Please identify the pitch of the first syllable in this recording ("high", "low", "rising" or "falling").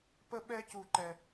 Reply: high